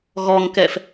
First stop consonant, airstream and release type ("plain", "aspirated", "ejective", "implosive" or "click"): plain